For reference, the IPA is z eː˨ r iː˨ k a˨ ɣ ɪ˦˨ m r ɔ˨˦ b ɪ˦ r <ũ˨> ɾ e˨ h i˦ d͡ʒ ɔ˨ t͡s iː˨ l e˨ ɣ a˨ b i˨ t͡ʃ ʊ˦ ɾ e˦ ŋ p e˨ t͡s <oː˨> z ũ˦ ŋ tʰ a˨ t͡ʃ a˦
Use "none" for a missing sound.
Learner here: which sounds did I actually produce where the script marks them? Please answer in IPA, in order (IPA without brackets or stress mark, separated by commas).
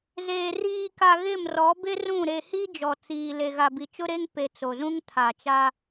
ũ˦˨, o˨